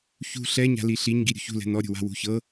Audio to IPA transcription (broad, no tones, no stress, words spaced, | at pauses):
çṳ ɬɛɲa̤li ɬiɲ ɡiɾʲṳçṳlɛ̤ nɔɾʲṳwa̤ wṳçɤ